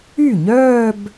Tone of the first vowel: falling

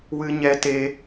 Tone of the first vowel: high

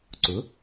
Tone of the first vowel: rising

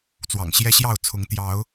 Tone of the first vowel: low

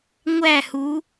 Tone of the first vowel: falling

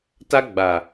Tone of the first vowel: high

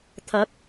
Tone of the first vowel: rising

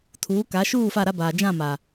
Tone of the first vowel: rising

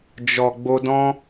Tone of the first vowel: low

